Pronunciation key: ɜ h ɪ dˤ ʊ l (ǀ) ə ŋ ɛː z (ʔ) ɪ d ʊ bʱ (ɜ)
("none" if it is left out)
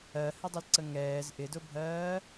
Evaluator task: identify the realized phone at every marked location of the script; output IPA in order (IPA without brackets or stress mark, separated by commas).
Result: ǀ, ʔ, ɜː